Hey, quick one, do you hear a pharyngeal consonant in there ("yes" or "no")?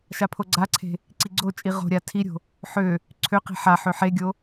yes